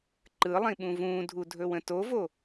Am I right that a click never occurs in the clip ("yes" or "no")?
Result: no